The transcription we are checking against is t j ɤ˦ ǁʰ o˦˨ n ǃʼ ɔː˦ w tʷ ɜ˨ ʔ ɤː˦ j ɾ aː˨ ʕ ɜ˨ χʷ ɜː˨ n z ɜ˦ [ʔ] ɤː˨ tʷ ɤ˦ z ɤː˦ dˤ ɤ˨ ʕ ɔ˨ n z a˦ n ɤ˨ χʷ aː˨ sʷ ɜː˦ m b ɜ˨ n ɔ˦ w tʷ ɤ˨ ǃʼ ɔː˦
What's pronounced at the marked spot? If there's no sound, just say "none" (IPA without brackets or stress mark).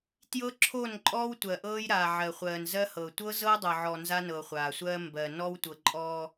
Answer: h